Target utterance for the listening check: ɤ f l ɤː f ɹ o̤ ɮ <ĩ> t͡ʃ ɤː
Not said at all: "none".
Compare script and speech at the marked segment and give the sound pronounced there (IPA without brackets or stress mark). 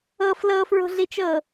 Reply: i